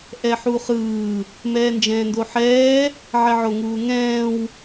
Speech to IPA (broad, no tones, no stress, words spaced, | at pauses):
ʔɛħuχɯː | mɛːnd͡ʒɛ̃ːndoħɛː | ʕɛʕoŋuːŋɛ̃ːw